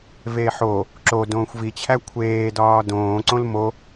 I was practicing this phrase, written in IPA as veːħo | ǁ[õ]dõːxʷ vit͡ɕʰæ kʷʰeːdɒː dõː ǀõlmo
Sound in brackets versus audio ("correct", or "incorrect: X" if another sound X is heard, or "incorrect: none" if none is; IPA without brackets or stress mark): incorrect: o